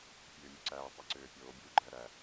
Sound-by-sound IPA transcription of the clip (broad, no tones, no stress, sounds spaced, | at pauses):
pʲ øː mʲ u ǀ æː tˤ y ǀ øː pʲ oː bʲ uː ɡ͡ǃ æ ɾ æ